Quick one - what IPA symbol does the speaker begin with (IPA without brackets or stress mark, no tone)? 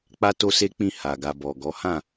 k͡p